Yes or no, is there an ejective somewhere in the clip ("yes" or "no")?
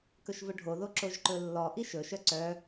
no